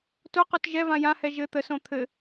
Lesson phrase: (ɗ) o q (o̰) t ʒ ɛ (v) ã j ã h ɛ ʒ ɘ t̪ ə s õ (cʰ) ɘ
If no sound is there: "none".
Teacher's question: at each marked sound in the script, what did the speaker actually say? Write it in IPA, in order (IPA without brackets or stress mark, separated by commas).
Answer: t, o, v, t̪ʰ